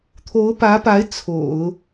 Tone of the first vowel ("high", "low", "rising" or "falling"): rising